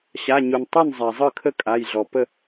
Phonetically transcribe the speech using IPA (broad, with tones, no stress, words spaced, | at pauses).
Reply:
ɕa˩˧˩ɲu˩n tˤu˥˩nzˤa˩ zˤɯ˥˩kʰə˥˩ kʼa˩˧˩jɮɔ˩ pə˥˩